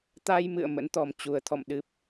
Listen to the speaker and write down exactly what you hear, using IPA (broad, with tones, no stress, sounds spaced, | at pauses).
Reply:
t̪ a˧ j m ɨ̰˧˨ ə̯ m ə̰˧˥ n t̪ ɔ˨˩ m t͡ɕ u˨˩ ə̯ t̪ʰ ɔ̰˧˨ m ɗ ɨ˦˥ p̚